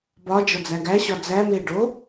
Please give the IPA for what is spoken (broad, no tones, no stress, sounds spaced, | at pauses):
b ɒ d͡ʒ ɒ d͡z æ ɡ æ ɕ ɒ d͡z æ m e ɖ o